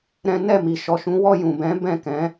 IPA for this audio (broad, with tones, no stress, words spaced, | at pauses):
ɾɛ̃˦ nɛ˦˨mi˨ ʃɔ˨ʃũ˨˦wɔ˦˨ jũ˨ bɛ̃˨˦ bɛ̃˦˨kɛ̃˨˦